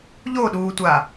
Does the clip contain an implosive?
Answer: yes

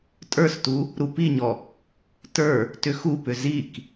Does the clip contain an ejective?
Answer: yes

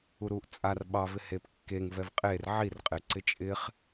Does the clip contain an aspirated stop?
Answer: no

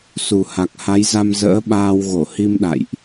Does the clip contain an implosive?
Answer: yes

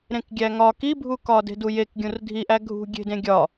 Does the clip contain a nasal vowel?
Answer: yes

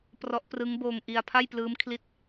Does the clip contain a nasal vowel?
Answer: no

